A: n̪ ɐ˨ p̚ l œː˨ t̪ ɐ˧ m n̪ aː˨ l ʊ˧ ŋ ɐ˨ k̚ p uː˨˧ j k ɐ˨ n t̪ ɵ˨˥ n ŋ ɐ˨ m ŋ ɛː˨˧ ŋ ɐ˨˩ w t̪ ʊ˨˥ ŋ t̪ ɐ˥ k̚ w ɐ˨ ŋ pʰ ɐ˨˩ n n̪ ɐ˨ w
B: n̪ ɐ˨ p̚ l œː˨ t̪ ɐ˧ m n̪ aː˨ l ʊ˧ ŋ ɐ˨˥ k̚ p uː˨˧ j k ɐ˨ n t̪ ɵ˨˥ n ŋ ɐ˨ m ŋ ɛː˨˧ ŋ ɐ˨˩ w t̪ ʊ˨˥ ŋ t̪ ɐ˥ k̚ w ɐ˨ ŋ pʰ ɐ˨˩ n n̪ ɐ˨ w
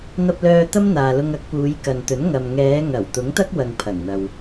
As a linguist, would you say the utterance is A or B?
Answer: B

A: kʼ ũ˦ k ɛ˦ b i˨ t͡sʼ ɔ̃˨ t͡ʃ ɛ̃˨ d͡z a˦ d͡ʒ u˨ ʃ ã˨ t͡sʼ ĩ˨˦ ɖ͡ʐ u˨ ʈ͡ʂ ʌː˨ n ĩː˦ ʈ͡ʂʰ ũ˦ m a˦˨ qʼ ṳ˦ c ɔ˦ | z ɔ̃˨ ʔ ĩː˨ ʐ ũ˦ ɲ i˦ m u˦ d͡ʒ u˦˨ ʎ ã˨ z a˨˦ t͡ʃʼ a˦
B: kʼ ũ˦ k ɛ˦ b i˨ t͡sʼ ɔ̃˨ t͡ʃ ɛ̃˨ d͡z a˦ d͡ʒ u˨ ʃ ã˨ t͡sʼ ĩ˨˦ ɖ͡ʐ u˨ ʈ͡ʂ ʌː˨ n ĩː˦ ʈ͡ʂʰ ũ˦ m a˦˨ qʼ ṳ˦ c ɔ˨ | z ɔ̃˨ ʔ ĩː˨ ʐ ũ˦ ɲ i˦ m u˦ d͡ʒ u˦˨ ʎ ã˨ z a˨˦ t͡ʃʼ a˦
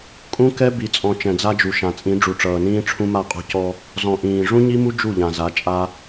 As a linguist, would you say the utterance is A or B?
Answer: A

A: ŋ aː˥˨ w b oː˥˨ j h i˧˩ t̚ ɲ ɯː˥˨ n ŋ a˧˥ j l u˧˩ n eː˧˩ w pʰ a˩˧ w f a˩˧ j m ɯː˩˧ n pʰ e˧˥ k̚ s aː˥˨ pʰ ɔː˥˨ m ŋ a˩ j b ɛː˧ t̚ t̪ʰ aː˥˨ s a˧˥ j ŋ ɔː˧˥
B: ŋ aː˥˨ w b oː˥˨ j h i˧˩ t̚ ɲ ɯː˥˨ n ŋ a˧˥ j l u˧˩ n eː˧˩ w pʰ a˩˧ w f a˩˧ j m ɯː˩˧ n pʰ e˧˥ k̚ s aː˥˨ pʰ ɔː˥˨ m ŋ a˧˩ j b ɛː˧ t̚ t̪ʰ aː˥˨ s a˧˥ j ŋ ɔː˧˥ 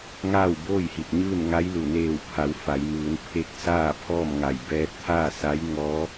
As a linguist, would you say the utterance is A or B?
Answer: B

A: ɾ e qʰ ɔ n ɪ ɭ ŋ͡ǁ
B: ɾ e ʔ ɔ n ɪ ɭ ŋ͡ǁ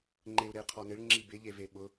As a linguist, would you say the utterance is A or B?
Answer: A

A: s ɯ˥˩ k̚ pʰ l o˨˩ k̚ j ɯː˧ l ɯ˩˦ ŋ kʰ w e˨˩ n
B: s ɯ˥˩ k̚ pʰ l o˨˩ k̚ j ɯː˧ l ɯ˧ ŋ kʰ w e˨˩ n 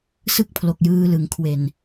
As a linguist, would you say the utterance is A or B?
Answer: A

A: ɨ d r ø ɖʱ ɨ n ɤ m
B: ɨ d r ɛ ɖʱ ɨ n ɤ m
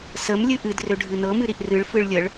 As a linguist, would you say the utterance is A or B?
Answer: A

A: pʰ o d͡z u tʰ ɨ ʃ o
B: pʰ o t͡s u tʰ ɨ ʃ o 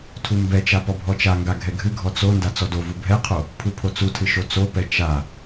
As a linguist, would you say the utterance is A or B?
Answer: B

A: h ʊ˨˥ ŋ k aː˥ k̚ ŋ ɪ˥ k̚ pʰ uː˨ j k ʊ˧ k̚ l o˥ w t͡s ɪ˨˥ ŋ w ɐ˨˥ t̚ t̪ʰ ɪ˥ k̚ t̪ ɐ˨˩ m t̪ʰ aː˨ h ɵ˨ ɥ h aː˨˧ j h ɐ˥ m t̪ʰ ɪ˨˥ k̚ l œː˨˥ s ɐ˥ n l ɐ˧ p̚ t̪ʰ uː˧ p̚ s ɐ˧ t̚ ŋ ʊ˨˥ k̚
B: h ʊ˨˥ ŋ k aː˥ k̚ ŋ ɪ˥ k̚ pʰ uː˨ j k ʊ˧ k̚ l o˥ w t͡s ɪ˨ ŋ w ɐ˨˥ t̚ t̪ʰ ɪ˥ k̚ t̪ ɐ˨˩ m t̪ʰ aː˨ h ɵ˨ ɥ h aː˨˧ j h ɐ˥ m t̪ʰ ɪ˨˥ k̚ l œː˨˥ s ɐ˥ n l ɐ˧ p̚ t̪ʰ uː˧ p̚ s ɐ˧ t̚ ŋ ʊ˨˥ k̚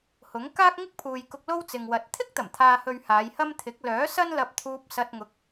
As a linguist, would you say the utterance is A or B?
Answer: B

